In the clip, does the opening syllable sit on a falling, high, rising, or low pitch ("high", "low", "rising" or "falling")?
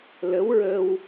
rising